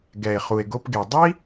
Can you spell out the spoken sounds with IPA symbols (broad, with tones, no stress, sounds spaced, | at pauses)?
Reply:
ɡ ɛ˨ e̯ χ u˨ e̯ ɡ o˧ p ɡ e˨ dˤ i˦